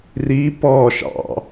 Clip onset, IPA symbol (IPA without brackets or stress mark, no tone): r